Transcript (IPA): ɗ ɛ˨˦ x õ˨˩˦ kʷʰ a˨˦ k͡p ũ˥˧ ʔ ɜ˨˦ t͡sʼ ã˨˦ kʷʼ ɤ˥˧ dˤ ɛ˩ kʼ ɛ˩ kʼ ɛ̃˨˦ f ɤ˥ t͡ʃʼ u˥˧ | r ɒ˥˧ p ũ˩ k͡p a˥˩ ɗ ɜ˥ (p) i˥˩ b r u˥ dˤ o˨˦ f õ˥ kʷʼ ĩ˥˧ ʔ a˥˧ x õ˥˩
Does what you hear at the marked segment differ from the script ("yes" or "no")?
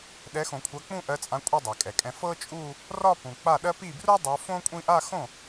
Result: no